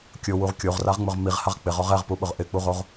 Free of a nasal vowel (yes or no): yes